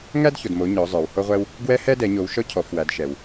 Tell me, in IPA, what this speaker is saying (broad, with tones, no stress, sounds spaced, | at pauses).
ŋ æ˥ d ç o˨ d m o˨˦ ɲ ɔ˨˦ zˤ ə˞˨ w h o˥ ʁʷ ɛ˥ w | ɡ w ɛ˥ h ɛ˥ d ɛ˨˦ ɲ o˨˦ w ʃ ɔ˥ cʰ ɔ˨˦ f w æ˨˦ d ʃ ɛ˨ w